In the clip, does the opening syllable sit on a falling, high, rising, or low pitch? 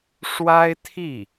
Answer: high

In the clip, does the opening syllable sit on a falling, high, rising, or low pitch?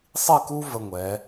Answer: falling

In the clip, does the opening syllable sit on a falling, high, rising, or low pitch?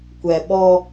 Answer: low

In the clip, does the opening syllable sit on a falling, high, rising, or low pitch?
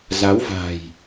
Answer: rising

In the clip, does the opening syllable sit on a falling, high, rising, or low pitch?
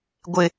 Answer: low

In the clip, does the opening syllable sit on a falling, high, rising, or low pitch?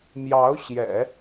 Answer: rising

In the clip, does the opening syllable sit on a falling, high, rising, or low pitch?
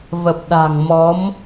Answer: low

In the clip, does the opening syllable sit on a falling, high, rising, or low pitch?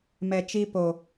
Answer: low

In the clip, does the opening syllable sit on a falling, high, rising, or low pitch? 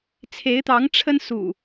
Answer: rising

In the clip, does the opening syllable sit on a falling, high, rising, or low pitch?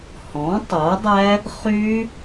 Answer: rising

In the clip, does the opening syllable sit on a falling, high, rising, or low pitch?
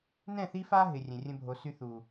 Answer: falling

